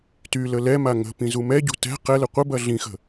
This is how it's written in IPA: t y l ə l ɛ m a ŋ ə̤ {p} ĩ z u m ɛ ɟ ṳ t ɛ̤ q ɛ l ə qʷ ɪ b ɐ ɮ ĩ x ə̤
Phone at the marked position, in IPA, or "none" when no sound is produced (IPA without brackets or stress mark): p